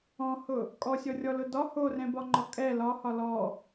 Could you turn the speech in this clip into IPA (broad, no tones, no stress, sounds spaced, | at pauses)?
ɔ̃ h ʊ | kʼ ɔ sʲ ɔ rʲ ɔ l ʊ d ɒ h o r ɛ̃ b ɒ ŋ͡ǃ ɒ kʼ ɛ l ɒ h ɒ l ɔ